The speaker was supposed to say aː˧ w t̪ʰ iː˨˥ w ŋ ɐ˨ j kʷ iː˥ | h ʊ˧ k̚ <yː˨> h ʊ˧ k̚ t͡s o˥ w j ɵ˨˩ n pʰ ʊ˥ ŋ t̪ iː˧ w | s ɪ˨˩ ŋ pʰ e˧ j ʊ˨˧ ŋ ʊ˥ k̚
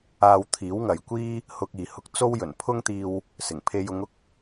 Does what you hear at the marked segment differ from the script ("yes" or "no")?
yes